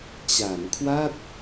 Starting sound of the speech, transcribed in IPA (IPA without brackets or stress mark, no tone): t͡ɕ